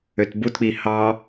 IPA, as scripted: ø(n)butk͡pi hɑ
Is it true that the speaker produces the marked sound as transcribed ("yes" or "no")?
no